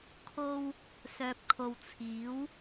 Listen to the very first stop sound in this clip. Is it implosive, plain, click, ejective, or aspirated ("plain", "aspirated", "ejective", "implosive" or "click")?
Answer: aspirated